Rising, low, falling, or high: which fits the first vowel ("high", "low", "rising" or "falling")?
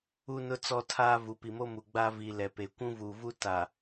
high